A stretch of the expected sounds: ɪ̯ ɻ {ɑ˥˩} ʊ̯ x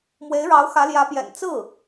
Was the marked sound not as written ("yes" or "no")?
yes